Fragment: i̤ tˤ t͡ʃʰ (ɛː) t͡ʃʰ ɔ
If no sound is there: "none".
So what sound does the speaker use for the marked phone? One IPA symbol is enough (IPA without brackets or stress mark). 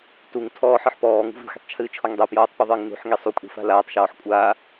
ɨː